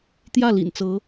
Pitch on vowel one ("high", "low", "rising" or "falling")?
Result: falling